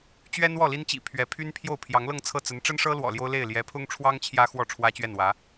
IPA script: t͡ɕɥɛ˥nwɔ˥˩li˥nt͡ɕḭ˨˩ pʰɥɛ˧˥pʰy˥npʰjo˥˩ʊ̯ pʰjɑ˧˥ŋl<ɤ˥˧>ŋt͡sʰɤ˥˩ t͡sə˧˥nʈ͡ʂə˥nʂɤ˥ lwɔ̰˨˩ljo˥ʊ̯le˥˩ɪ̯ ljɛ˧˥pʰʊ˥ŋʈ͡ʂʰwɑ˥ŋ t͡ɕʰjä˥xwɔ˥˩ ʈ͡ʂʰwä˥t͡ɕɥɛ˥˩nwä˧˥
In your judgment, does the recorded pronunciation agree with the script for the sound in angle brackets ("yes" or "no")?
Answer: yes